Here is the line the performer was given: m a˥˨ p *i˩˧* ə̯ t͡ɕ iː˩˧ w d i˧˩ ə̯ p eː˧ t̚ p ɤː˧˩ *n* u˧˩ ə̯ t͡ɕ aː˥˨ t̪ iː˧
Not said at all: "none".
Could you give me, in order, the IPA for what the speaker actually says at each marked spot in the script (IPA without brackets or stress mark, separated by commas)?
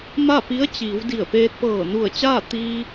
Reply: i˧˥, n